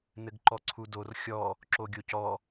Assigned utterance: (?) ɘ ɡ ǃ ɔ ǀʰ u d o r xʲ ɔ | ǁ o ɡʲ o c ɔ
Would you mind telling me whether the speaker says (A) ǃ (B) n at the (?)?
B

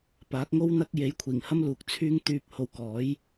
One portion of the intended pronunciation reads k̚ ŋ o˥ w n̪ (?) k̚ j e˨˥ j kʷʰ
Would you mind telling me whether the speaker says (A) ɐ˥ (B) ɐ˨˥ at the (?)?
A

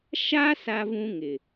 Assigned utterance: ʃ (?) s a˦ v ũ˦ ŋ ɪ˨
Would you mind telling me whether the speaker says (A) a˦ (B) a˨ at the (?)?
A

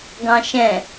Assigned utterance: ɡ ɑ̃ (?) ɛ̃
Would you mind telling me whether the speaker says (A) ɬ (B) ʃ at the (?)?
B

